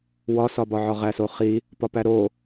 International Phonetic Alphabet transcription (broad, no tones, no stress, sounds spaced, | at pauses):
w ɒ s ɒ b ɒ ʕ ɒ ʁ æ s o χ i | p ɒ p æ ɾ o